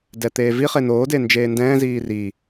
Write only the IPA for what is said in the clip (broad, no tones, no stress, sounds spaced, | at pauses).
d ɛ t̪ eː v i χ e n oː d e n d͡ʒ eː n d ɛ̃ː z iː r i